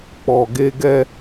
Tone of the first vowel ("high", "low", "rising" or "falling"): low